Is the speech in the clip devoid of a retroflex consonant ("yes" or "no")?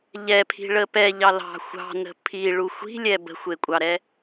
no